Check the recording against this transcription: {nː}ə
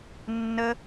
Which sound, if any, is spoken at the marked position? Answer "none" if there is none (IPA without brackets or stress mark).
nː